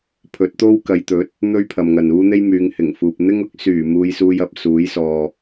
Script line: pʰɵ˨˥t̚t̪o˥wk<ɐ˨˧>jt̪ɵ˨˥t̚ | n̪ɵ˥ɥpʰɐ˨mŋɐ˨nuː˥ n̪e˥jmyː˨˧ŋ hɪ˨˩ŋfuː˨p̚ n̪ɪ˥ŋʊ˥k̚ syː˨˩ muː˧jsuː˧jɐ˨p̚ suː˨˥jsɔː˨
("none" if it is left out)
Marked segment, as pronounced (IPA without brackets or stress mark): ɐ˨˧